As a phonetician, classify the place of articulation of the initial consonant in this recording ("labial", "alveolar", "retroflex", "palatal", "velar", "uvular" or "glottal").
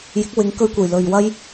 palatal